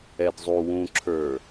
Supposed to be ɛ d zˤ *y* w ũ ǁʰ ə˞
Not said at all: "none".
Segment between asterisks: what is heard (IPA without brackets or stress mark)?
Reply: u